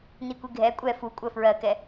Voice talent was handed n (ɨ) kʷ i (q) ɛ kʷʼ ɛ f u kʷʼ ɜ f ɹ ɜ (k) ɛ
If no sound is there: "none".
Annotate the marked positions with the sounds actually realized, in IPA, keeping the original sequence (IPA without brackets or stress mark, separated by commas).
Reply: i, ɡʱ, k